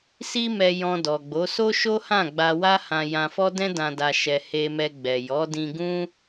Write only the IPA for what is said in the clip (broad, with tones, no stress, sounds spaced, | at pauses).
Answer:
s i˦ m ɛ˧ j ɔ̃˧ d ɔ˨ ɡ͡b o˨˦ s o˦ ʃ o˦ h ã˦˨ ɡ͡b a˧ w a˦ h ã˧ j ã˧ f ɔ˦ d ɛ̃˦ d ã˧ d a˧ ʃ ɛ˧ h e˧ m ɛ˧ ɡ͡b ɛ˨ j ɔ˨˦ d ĩ˧ ɡ ũ˦